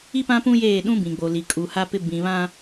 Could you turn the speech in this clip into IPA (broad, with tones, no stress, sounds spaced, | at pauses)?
i˦ p ã˦ p ũ˦ j eː˦˨ ɗ ũ˦ b ĩ˨ ɡ͡b o˨ l i˨ kʼ u˨ h a˦ p ɪ˦ b ĩ˦ β ã˦